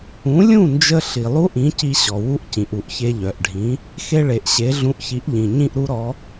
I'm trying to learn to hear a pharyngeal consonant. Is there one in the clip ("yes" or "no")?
no